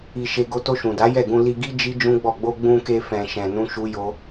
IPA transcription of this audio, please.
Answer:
i˨ ʃ e˨ ɡ o˧ t o˧ ʃ ũ˨ d a˨˦ j ɛ˦˨ ɡ ũ˧ l i˧ ɡ i˦ d͡ʒ i˦ d͡ʒ ũ˦ ɡ͡b ɔ˦˨ ɡ͡b o˧ ɡ͡b ũ˧ k e˧ f ɛ̃˧ ʃ ɛ̃˧ n ũ˦ ʃ u˦ j o˦

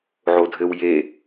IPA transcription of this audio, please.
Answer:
ʕ o dʱ ɘ w j e

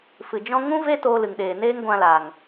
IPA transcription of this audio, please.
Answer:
f ɨ˨ d͡ʒ ɔ̃˧ ŋ ũ˦ v e˦ t oː˧ l ɨ˨ ŋ ɗ eː˨ n eː˦ ŋ ɡʷ ã˧ l aː˨ ŋ

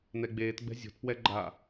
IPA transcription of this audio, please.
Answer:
n ɛ ɡ͡b eː t ɡ͡b ɛ̤ zʲ o̤ t p w ɛ ɡ͡ǃ a

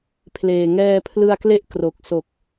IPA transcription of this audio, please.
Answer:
pʰ l eː˨˩ ŋ ɛː˧ pʰ l ɯ˧ a̯ k l e˥˩ ʔ k r o˨˩ k̚ s o˨˩ k̚

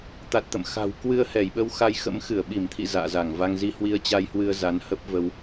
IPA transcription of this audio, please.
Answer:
t̪ a˨˩ t̚ t̪ ə̰˧˨ m x a̤˨˩ w k w ɨ˧ ə̯ h ɛ˧˩ j ɓ ə˧ w x a˧ j x ə̰˧˥ m x ɨ˧˩ ə̯ ɓ i˧˩ m t̪ʰ ḭ˧˨ z a̰ː˧˨ z a˧˩ ŋ v a˧ ŋ z i˧ h w i˧ ə̯ t͡ɕ a˧ j h w ɨ˧ ə̯ z a˨˦ n h ə˦˥ p̚ v ə˧ w

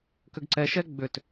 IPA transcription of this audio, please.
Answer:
k ʏ ɡ ǀ ɛ ʃ ɛ ɡ͡b ʏ t

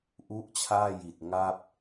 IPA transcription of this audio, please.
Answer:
ʔ u˦˥ ʔ t͡ɕʰ aː˥˩ j i˨˩ t̚ ŋ a˥˩ p̚

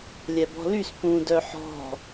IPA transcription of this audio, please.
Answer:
lʲ ɛ b ɔ̤ l y s p ũ d œ ħ ɔ̤

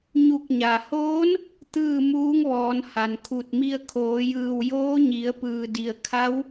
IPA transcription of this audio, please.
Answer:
ɲ u˧˩ k̚ ɲ a˩ h oː˧˥ n | t̪ ɯː˥˨ m uː˧˥ ŋ ʋ ɔː˩˧ n h a˩ n kʰ u˧˩ t̚ m i˧ ə̯ kʰ oː˩˧ j ɯː˧˩ w j oː˧˥ ɲ i˩˧ ə̯ p ɯː˩ d i˩ ə̯ kʰ a˧˥ w

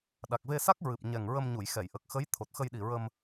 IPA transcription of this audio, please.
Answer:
ɗ a˨˩ k̚ v e˧ s a˦˥ k̚ ɹ ɨ˨˩ p̚ ɲ ɛ˨˩ ŋ ɹ ə˧ m ɲ u˨˩˨ j x ɛ˨˩˨ j ʔ ə˨˩ k̚ x ə˧˥ j t̪ʰ o˨˩ t̚ x ə˧ j ɗ i˨˩ ɹ ə˧ m

